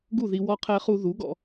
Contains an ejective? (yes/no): no